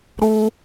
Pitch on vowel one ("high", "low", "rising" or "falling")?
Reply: high